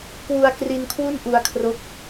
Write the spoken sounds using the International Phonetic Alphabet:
k w u˧ a̯ k r i˧ n kʰ w u˥˩ n ʔ u˧ a̯ kʰ r o˦˥ k̚

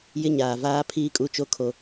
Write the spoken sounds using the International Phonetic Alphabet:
j ɪ˦ ɲ aː˨ v aː˦ pʰ iː˦ kʼ u˦ t͡ʃ o˦ kʰ o˦

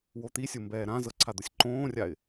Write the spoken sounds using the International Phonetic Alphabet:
w o t̪ i sʲ o m b ɛː ɾ ã z ɤ ǀʰ a d̪ ʊ sʲ ǃ õː rʲ a ɪ̯

